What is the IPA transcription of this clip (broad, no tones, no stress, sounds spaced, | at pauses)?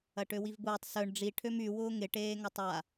ɐ ʈ ø w i v b ʊː tˤ s œ ɳ ɖ͡ʐ i ʈʰ ø m y w ʊː ŋ ɪ ʈ eː ŋ ɐ tˤ a